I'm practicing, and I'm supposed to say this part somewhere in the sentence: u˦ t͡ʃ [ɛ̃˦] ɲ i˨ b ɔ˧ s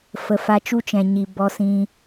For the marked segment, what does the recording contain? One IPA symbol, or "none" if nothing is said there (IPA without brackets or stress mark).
ɛ̃˨